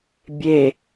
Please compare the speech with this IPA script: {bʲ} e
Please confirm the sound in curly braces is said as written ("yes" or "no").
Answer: yes